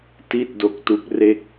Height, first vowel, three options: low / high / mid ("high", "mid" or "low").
high